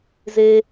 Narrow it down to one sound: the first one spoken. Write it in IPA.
z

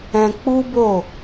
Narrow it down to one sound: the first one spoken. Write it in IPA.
ɛ̃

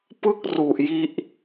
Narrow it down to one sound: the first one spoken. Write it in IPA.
p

